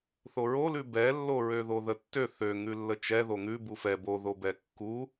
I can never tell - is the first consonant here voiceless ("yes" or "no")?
yes